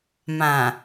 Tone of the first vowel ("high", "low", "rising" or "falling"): low